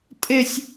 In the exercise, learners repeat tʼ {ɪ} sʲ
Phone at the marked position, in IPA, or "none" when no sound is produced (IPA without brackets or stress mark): ɪ